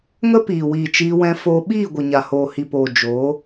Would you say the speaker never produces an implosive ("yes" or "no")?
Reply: no